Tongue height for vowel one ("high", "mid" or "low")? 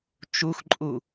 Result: high